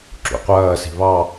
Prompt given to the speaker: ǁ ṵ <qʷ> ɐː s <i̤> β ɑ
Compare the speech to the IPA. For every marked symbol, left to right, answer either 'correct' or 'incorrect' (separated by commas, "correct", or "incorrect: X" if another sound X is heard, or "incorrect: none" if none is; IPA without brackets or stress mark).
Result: correct, correct